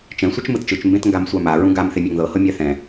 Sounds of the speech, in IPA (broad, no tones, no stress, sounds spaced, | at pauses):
t͡ʃ ɛ̃ sʷ ɛ t͡ʃ m ɯ t t͡ʃ ɯ t͡ʃ m b ẽ t ŋ ɡ a m sʷ a m a ɹ ũ ɡ a m θ e mʲ a ŋ ð ɤ h ɤ mʲ a θ ɛ̃